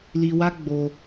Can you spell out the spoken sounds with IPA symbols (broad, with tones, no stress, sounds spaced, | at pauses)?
l i˧ w a˦ ɡ͡b o˧